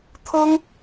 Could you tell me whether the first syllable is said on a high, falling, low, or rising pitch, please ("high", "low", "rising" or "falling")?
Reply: high